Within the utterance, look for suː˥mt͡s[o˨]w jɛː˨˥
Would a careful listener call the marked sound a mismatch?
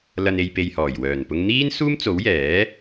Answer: yes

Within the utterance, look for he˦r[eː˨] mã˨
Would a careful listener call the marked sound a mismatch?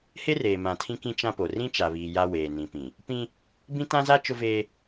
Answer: no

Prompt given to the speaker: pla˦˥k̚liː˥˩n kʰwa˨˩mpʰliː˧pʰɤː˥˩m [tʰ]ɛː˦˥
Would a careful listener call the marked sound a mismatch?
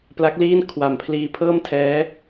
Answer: no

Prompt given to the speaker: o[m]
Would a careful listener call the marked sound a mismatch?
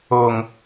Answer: yes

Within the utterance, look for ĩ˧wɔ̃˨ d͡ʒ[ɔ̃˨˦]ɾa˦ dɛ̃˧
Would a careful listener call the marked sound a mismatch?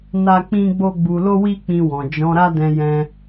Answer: no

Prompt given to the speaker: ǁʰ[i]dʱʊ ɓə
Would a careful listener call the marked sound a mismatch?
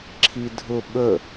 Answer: no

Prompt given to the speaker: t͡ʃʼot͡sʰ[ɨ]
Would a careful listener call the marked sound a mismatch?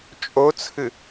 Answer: no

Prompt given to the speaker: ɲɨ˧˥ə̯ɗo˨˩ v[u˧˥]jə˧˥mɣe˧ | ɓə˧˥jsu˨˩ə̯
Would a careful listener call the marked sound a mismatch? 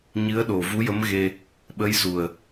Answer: no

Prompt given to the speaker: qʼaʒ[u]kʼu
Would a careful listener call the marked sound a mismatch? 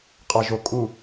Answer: yes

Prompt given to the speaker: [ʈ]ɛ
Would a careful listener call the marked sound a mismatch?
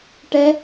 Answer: no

